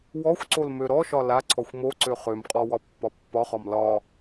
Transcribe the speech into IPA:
w ɔ xʷ ǀ o l m ø ɾ ɔ ʃ ɒ l a ǀʰ ɔ xʷ m o ǀ ø χ ø m qʼ ɔ w ɒ pː ɒ pː ɒ χ ɒ m l ɒ

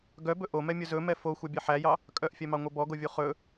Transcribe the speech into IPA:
ɡ œ b ɵ ʔ o m ɛ mʲ ɵ z ɵ m ɛ f o xʷ ɑ bʲ ɛ ħ æ j ɑ | kʼ œ ʔ fʲ ɛ m ɑ ŋʷ œ b ɔ ɡ o vʲ u χ ɵ

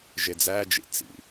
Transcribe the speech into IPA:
ʒ e d͡z æ d͡ʒ ḭ t͡s ḭ

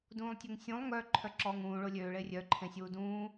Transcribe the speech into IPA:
d ũː lˠ tʲ o ŋ sʲ ũ lˠ ŋ œ ǃʰ œ ǁ ɔː ŋ ũː ɭ o lʲ øː ɭ e rʲ œ ǃʰ ẽ sʲ uː d ũː

